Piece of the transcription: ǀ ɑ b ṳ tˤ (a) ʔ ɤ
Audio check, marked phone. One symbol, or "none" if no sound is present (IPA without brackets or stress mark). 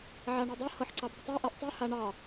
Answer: a